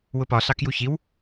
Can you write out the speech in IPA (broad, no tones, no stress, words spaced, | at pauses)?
wʊpɒɬɑkju çiw